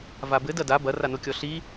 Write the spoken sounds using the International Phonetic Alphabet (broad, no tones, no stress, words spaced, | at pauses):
vabɘ dɐda bɐranokʲɔ ɬi